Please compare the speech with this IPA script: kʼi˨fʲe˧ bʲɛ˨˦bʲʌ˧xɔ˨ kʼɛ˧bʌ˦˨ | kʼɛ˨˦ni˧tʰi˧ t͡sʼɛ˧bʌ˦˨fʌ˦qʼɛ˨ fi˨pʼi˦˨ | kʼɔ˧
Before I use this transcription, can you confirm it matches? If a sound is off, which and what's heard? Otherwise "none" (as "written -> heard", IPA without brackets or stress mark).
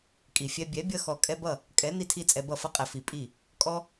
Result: e˧ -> ɛ˧